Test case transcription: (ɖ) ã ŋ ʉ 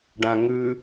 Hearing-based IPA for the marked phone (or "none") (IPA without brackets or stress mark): ɖ